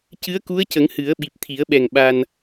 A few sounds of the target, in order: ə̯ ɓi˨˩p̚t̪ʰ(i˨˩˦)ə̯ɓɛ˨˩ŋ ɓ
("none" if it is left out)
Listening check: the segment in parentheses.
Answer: i˨˩˦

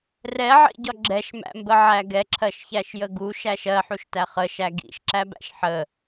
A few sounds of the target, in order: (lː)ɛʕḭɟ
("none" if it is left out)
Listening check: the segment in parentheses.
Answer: r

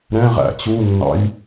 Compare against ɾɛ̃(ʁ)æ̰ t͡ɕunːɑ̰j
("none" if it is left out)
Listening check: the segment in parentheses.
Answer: ʁ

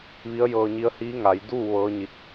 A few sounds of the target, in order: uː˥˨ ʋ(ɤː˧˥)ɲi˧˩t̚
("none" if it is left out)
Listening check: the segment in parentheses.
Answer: ɤː˧˥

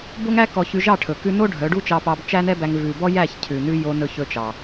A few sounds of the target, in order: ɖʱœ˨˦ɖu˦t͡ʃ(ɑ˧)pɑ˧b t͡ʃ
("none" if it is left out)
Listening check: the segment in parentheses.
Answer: ɑ˧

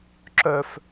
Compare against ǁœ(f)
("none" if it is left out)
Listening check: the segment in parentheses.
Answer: f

